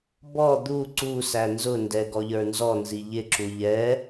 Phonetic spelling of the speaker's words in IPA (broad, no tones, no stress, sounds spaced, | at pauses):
b ɔ d̪ u ǀ u s æ n z ʊ n d ɛ ɡ ɔ ʎ ə˞ n z ɔ n z i ʎ ɪ ǁ u ʎ ɛ